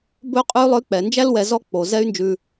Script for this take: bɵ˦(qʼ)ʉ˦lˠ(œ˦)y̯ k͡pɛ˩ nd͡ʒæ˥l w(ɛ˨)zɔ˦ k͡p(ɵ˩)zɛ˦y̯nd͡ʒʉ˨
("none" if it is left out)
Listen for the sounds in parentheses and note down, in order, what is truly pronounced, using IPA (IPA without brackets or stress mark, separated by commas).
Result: qʼ, œ˦, ɛ˨, o˩